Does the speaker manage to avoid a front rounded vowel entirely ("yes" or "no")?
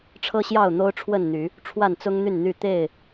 no